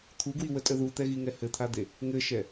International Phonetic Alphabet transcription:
t̪ʰuɡwiwətʼə ðut̪ɛɣiŋɛ hɘt̪ʰad̪e | ŋɘʃɛ

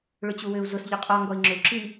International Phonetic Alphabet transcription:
ɭʏt͡ɕuwʏu̯ zʊs ʎʏqʼɔ ŋɡɔi̯ŋ͡ǁʏu̯ǁi

